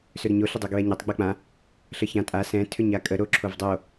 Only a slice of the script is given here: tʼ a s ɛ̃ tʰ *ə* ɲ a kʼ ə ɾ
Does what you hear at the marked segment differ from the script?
yes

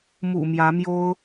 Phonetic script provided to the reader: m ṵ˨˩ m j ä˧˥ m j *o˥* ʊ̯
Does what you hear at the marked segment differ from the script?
no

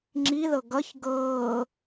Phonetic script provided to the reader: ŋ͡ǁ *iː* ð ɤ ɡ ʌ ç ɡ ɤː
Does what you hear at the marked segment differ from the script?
yes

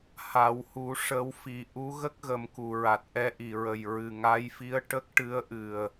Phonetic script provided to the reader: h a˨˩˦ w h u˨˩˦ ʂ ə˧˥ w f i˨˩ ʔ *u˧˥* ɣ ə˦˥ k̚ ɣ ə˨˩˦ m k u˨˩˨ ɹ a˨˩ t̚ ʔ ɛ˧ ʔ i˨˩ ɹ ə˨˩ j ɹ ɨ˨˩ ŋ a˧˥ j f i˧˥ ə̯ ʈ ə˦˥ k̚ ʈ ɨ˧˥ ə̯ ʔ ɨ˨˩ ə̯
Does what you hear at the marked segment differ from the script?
no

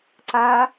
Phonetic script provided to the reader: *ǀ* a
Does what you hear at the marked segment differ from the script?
no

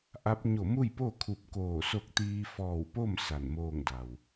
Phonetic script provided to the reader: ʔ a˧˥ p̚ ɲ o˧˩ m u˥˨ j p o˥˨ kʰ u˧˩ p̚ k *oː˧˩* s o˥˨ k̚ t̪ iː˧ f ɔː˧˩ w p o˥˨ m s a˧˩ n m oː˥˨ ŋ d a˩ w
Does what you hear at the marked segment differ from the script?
no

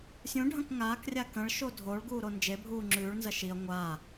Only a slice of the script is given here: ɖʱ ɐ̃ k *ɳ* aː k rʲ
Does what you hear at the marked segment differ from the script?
yes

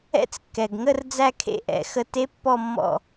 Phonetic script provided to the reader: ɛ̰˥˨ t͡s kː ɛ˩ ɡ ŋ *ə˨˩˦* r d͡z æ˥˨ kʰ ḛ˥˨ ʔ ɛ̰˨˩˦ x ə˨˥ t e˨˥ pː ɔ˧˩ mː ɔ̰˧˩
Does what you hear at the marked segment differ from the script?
yes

